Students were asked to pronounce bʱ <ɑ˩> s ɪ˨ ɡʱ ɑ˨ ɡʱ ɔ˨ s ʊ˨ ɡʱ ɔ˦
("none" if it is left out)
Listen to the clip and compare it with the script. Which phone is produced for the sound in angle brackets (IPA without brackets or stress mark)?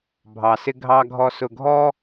ɑ˩